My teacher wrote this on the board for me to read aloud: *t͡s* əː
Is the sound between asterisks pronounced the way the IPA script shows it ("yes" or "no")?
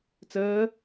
yes